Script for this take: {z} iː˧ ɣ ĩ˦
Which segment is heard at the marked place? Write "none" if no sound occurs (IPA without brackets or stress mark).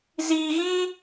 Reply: z